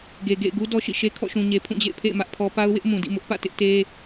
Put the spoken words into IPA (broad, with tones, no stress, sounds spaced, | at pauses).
ɡ e˨ ɡ ḛ˦˨ ɪ̯ ɡ u˦ d ɔ˦ ʃ ḭ˦˨ ʃ e˦ kʰ ɔ̰˦˨ ʃ ũ˨ ɲ e˨ pʰ ũ˦˨ d͡ʑ ḛ˦˨ ɪ̯ pʰ ḛ˦˨ ɪ̯ m ä˦ ʔ pʰ ɔ˦ p a˦ ʊ̯ w ɪ˦ ʔ m ũ˨ d ḭ˦˨ m ʊ˦ ʔ p ä̰˦˨ t ɪ˦ ʔ t e˦